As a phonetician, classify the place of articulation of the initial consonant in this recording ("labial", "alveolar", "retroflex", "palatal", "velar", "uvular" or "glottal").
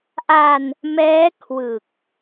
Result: glottal